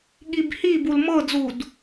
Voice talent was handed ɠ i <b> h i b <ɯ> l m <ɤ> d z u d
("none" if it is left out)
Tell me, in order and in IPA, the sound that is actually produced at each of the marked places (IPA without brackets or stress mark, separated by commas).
b, u, ɤ